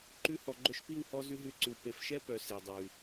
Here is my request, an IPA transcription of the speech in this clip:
ǃ ʉ˧ h ɔ˨ ɡ͡ǃ œ˧ ʃ p i˦˨ w h ɔ˧ z ʉ˦ ɦ ʉ˦˨ ǀ ʉ˨ w p e˨ f ʃ ɛ˦ p œ˨ s e˨ dˤ ʉ˨

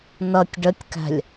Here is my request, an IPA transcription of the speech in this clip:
n ʌ tʲ ɖ ə tʲ k æ̤ lʲ

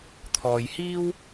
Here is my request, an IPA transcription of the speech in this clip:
t̪ʰ ɔː˨ j h iː˥ w

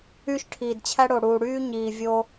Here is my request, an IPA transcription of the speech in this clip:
yː˦ ʃ ʈʰ iː˨ d t͡ɕʰ æ˦ ɽ o˨ ɽ uː˨ ɽ yː˦ ɲ iː˨ vʲ oː˧

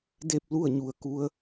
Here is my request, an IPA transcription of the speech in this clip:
d e˥˨ p̚ l u˥˨ ə̯ ɲ u˩ ə̯ k u˧˥ ə̯

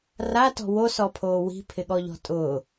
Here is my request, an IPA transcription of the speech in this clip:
r a t ɔ̤ w o s ɔ pʰ oː w i̤ pʰ ɪ ɠ ɔ ʎ ɔ̤ tʼ ʊː

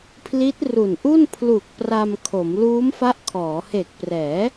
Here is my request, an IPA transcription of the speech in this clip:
pʰ l i˦˥ t̚ r u˨˩ n ʔ u˥˩ n pʰ l u˨˩ k̚ p r a˧ m kʰ o˩˦ m l uː˦˥ m f a˦˥ ʔ kʰ ɔː˩˦ h e˨˩ k̚ p r ɛː˩˦

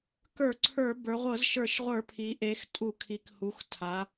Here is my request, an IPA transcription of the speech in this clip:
k ə˞˧˩˧ ǀʰ ə˞˧˩˧ b ə˞˩˧ ʁʷ ɤ˧˩˧ z ʃ ə˞˧˩˧ ʃ ʁʷ ə˞˧˩˧ pʰ i˩˧ ʔ e˩˧ x tʼ u˧˩˧ kʰ i˩˧ k h u˩˧ x tʰ a˩˧

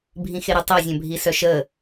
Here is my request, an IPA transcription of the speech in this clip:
bʱ ĩ x e ɾ ə tˤ əː zʲ œ̃ bʱ i s œ ʃ əː

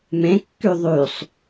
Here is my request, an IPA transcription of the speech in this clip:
m ẽ kː y ðˤ y sˤ

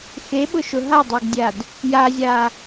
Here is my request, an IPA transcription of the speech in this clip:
x e ɓ ʊ ʃ ʊ ɦ a dˤ a ɡ dʲ a d | j a zʲ a

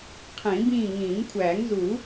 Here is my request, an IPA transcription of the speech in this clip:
qʰ ĩː˨˩˦ b ĩː˦˨ ŋ ĩː˨˩˦ ŋ kʷʰ æː˨˩˦ ŋ z u˨˩˦

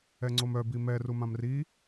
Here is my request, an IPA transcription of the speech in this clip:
ɛ ŋ͡ǀ o m œ b i m ɛ r u m ã m r i

